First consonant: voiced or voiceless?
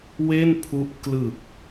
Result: voiced